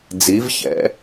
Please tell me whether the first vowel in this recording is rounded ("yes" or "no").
no